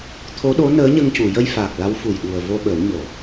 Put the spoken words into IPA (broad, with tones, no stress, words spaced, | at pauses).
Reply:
t̪ʰo˧˥ɗo˧˥ nəː˧˥ɲə˧ŋcu˨˩˨ jə˧jfaː˨˩k̚ la˧˥wfu˨˩jɗu˨˩ə̯ vo˧ɓə˨˩˦w ɲo˨˩˦